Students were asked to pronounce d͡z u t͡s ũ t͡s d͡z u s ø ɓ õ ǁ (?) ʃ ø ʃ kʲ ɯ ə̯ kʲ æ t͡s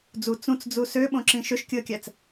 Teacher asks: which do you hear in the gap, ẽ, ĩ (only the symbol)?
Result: ĩ